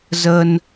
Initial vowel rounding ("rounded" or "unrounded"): unrounded